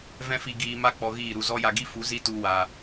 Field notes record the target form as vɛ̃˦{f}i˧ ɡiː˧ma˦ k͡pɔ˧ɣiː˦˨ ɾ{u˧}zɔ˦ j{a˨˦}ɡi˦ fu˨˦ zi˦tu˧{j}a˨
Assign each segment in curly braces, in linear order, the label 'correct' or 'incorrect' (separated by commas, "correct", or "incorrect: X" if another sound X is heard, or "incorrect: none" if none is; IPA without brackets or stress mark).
correct, correct, incorrect: a˧, incorrect: w